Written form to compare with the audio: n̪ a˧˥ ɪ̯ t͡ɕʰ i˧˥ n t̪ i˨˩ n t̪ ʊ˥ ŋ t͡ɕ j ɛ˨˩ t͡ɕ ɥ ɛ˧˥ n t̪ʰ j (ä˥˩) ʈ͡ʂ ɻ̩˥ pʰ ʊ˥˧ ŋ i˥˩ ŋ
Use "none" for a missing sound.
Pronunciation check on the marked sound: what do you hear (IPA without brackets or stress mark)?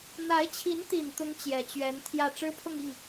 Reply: ä˥˩